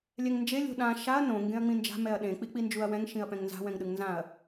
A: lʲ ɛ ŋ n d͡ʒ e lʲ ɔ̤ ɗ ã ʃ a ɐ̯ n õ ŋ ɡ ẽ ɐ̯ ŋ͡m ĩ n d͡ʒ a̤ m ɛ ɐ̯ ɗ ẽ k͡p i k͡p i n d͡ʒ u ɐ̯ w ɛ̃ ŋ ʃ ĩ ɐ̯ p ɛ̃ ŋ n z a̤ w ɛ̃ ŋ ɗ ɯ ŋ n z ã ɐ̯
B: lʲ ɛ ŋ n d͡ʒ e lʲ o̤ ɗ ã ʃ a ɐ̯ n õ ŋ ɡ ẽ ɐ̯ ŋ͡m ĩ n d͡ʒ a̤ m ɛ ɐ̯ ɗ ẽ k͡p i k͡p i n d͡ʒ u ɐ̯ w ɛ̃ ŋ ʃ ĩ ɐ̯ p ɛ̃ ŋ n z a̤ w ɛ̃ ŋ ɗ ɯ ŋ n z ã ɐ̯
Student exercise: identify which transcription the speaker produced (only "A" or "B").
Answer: B